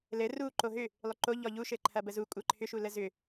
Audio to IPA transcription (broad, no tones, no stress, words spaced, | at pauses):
lɘ ru ǃoɦʏ | lˠʏǃo ʎɔʎu ʃɘǃʰɐbəzu kʷʼɘ ǃʰʏʃu ləzʏ